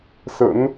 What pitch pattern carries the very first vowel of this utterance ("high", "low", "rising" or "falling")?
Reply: rising